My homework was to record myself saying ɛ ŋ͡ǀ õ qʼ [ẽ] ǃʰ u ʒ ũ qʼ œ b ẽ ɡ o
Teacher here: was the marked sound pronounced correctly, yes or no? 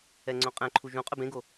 no